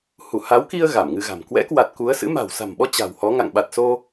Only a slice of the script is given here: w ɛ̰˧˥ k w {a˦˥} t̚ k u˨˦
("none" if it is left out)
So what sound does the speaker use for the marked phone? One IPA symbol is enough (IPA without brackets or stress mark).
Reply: a˨˩